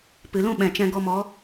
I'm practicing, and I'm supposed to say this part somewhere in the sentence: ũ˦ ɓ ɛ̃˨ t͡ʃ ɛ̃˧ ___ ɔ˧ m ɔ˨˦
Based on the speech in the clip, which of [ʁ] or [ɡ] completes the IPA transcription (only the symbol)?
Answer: ɡ